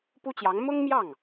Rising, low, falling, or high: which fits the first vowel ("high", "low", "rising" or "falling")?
high